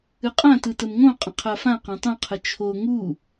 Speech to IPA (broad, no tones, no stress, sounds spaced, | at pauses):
ɨ qʼ ã t ɯ t ə m ŋ õ qʼ ə̃ qʰ a f ã q ã tˤ ũ qʰ ə t͡ʃʰ o ŋ u